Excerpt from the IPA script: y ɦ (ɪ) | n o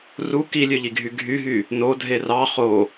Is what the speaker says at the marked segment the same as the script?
no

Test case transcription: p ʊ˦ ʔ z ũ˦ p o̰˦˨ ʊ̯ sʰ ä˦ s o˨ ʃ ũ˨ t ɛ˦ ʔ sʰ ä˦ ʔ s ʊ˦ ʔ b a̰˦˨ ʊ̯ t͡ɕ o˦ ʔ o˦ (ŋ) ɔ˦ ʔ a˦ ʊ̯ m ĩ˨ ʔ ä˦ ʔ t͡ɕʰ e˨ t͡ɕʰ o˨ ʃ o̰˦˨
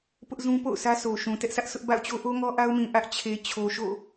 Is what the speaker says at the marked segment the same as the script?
yes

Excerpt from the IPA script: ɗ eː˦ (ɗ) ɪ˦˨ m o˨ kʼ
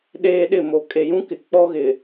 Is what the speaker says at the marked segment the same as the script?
yes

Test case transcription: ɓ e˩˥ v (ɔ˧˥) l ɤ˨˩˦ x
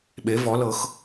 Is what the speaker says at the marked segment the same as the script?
no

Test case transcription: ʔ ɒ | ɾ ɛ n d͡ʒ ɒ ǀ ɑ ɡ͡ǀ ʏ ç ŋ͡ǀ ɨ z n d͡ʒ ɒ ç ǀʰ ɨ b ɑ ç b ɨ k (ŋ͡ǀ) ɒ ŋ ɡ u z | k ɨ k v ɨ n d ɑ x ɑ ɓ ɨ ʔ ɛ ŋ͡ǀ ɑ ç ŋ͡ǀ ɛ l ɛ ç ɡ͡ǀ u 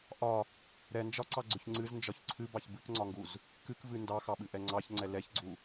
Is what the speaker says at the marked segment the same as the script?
yes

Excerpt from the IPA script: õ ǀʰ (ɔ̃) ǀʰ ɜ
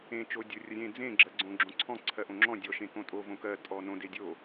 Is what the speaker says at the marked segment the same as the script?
yes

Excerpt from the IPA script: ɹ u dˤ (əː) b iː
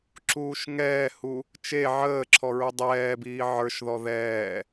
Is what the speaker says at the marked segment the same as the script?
no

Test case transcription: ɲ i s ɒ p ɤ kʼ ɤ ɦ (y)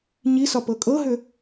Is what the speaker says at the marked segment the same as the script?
no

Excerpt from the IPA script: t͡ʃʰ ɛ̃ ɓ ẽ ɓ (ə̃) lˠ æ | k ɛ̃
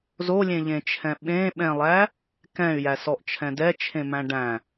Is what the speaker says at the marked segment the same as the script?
no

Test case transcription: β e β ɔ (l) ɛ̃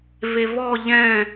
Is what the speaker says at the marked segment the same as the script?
no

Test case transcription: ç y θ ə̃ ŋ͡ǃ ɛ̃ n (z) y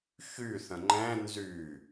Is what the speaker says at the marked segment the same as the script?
yes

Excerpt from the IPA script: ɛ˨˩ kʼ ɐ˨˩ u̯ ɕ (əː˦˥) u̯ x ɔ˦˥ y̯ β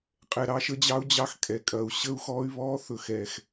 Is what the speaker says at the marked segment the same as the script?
no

